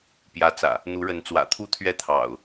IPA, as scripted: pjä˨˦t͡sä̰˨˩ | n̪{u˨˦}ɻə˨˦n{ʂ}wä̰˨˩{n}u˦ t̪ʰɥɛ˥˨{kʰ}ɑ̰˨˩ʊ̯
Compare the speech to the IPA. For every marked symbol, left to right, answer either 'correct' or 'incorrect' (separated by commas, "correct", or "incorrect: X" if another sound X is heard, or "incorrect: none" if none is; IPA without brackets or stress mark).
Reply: correct, incorrect: t͡s, incorrect: t̪ʰ, incorrect: t̪ʰ